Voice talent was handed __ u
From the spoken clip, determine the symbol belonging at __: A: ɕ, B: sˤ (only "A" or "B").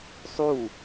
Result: B